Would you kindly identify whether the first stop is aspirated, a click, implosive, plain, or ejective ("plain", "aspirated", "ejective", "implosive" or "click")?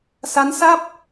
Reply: plain